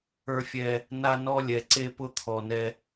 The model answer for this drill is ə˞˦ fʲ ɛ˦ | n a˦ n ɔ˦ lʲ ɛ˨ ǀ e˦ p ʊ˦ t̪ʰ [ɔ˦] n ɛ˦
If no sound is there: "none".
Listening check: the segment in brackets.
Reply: ɔ˨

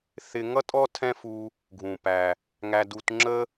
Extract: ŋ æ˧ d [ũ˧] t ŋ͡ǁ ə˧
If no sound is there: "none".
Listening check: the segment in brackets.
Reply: u˧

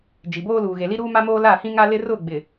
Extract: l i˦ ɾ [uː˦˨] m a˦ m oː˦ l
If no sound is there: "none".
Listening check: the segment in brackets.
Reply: uː˦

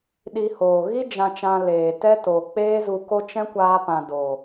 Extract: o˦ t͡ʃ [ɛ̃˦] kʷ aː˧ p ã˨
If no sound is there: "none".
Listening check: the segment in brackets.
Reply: ɛ̃˦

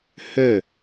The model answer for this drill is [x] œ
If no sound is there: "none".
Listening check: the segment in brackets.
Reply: h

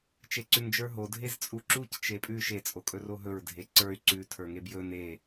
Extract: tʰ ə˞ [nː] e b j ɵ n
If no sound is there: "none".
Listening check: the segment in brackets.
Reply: ŋ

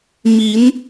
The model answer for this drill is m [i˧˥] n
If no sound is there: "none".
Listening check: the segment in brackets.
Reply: i˧˥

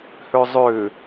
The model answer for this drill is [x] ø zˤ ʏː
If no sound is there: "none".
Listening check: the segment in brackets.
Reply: h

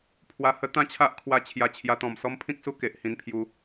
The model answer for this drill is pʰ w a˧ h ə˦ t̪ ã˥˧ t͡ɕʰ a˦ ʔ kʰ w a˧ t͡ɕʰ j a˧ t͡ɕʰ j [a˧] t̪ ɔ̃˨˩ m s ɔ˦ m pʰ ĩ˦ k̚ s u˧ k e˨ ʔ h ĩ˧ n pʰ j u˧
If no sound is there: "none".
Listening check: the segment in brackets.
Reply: a˧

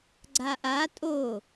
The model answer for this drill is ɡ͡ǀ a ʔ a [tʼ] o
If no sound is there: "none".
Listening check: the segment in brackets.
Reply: tʼ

